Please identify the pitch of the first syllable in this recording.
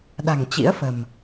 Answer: low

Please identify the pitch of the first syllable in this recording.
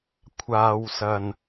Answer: low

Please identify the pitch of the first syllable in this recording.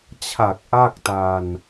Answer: low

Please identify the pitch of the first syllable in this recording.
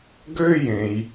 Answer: high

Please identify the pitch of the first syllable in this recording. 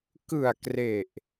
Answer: low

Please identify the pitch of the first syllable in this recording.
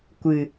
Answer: low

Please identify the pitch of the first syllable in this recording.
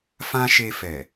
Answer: high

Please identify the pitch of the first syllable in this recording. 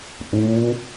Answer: rising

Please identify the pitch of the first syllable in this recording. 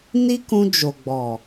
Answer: high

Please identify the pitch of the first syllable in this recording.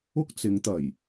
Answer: high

